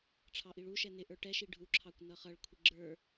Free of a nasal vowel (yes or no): yes